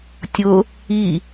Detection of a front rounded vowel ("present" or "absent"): absent